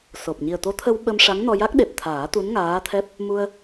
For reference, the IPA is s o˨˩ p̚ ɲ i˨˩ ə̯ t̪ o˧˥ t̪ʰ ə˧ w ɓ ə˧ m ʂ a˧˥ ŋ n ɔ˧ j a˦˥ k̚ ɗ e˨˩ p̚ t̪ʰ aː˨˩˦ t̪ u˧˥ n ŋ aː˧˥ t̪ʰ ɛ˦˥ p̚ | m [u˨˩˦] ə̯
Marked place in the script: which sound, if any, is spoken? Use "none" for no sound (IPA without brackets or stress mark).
u˧